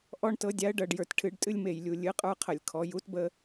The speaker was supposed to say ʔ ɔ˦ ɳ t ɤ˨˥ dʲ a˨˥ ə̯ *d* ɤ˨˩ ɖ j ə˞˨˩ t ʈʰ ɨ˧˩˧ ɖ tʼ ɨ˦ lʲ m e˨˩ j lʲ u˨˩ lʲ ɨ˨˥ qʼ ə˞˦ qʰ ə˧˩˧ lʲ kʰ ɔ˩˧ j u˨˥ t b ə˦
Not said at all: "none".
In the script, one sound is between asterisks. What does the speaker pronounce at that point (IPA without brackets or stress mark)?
ɖ